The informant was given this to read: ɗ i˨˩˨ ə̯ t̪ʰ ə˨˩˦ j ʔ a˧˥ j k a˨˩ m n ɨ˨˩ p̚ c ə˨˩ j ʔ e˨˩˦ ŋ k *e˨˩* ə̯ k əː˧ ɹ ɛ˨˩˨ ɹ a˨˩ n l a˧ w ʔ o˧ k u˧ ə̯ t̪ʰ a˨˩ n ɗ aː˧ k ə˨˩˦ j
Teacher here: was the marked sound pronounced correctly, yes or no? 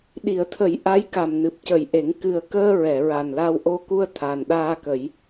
no